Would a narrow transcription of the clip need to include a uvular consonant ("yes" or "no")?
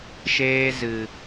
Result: no